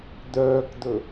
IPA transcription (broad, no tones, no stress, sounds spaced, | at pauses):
d̪ œː k d̪ ɵ